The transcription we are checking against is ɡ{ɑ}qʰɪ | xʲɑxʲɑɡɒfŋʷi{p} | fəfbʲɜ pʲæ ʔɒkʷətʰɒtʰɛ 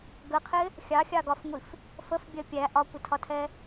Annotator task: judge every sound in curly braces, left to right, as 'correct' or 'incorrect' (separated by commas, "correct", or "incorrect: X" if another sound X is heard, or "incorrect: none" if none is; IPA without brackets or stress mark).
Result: incorrect: ə, incorrect: f